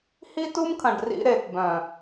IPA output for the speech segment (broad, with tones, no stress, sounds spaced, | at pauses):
h i˦ t u˦ m kʰ ɐ̃˨ ɖ r ḭ˧ ɾ e˨ t b œ̃˨